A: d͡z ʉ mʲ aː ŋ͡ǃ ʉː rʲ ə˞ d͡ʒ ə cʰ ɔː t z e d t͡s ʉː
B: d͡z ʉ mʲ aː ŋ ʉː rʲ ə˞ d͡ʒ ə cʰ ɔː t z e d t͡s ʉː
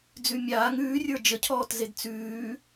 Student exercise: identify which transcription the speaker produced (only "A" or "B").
B